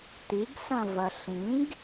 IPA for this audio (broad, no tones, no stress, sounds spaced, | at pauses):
t̪ i ɡ s ɐ̃ v ɐ ɬ ĩ ɡ